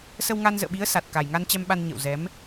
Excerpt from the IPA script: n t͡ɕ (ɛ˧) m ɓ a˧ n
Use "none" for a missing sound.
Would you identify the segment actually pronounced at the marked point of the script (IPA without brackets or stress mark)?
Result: ɛ˧